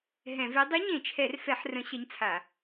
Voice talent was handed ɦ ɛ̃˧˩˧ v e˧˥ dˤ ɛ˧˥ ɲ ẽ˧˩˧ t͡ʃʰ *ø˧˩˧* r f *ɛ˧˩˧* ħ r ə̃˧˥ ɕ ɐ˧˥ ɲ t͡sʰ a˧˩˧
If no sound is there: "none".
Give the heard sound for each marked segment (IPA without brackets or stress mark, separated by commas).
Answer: ɛ˧˩˧, ɛ˧˩˧